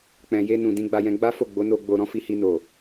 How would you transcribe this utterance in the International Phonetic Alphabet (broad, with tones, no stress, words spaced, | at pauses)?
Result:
k͡pɛ̃˧ je˦nũ˧ dĩ˧ɡ͡ba˧jɛ̃˧ɡ͡ba˦ fo˦˨ɡ͡bo˨˦no˧ɡ͡bo˧ ɾɔ̃˦fi˧hi˧no˨